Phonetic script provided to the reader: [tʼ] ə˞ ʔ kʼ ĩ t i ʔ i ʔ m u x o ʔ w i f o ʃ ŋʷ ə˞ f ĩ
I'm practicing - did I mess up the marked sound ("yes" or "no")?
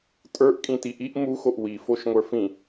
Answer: no